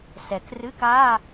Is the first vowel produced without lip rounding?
yes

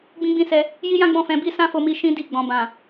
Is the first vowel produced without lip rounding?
yes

